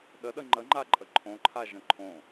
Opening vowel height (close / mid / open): mid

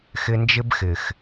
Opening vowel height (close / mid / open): close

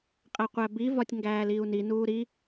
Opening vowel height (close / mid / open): open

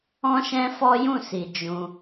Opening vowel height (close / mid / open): mid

